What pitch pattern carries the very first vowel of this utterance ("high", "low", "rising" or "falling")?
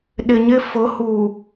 low